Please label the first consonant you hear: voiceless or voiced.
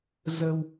voiced